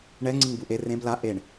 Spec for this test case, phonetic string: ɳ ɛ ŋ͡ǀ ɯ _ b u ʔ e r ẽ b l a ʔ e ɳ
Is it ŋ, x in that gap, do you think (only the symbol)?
ŋ